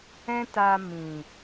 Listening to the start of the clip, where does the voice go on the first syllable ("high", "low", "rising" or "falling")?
high